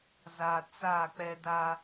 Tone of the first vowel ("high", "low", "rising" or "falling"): low